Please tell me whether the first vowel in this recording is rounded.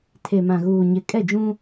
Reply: no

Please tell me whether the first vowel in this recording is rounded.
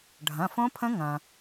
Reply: no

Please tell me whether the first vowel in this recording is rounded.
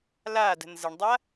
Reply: no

